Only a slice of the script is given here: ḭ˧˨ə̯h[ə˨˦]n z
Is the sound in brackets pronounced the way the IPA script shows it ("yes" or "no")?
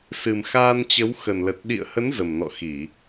yes